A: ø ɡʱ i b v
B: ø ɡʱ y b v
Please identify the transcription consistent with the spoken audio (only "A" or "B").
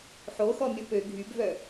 B